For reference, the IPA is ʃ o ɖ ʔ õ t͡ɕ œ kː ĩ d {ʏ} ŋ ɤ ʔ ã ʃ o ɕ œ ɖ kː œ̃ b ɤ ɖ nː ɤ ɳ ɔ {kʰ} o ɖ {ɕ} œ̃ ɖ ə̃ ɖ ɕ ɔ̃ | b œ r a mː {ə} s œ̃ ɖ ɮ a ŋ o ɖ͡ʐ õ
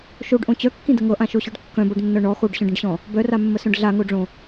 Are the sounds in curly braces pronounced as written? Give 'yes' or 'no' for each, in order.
no, no, yes, yes

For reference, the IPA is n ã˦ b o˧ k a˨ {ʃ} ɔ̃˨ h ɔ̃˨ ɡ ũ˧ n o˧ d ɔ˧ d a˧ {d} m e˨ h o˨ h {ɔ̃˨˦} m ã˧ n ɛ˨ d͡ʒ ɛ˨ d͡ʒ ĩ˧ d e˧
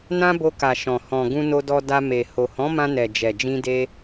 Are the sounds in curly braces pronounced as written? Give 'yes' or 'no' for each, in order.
yes, no, yes

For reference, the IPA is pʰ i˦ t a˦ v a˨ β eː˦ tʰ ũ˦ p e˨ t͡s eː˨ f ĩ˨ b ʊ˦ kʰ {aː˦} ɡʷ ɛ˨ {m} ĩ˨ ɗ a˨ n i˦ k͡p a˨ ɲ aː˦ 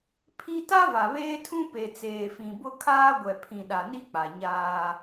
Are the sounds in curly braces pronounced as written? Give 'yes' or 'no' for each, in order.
yes, no

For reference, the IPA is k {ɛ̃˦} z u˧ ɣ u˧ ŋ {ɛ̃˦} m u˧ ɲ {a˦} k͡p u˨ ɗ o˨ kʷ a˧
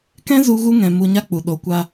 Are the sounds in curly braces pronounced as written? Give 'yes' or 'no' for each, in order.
yes, no, yes

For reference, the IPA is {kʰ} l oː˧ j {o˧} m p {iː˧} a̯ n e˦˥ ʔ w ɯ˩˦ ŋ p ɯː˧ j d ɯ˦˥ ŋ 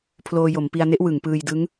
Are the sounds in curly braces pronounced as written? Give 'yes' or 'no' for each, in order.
no, no, no

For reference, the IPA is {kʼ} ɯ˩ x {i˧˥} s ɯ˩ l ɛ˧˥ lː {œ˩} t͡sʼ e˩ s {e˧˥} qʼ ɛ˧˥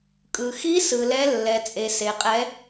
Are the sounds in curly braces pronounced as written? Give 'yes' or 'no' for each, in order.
yes, yes, no, no

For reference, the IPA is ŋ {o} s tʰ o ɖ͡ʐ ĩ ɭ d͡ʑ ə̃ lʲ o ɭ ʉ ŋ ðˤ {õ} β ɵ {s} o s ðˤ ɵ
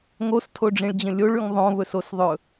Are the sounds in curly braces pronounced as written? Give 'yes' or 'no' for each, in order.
yes, yes, yes

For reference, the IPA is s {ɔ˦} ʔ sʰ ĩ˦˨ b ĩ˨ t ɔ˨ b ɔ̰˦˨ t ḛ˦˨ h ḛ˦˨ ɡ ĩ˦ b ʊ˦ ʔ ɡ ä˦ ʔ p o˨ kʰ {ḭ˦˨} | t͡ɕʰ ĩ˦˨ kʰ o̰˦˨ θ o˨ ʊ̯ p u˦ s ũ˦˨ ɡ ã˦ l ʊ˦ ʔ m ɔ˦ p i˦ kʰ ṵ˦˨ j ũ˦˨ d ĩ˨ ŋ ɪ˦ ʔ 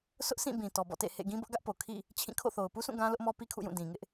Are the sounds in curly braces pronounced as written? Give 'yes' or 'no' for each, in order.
no, yes

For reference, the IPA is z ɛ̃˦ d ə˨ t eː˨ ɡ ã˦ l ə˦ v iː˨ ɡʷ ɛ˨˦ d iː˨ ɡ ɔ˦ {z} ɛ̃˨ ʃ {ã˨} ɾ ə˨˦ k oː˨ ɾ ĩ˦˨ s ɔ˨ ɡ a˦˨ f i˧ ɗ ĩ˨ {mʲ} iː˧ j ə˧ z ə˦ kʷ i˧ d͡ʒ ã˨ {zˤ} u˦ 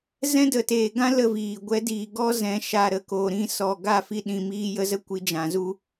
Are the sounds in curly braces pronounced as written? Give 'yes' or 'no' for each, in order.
yes, no, no, no

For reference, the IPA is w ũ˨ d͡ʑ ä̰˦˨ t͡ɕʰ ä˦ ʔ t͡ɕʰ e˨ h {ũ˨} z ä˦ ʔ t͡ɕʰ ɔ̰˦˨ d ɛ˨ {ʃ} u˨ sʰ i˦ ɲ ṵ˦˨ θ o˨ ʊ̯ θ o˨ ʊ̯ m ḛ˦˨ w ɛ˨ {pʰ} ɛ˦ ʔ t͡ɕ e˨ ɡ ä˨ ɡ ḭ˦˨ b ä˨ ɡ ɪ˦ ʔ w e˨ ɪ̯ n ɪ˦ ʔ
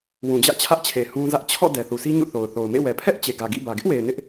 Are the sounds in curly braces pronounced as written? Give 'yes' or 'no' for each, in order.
no, no, yes

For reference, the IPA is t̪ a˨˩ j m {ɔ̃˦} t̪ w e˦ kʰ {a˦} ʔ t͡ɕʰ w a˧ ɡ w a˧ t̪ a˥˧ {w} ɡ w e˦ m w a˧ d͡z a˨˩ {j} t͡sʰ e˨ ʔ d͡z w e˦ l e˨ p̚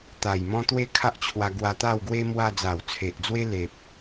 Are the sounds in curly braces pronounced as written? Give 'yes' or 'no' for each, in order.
yes, yes, yes, no

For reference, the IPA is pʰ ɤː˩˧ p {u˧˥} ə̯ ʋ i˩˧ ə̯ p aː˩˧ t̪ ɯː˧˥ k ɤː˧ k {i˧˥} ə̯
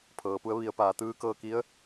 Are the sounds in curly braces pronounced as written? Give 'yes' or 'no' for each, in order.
yes, yes

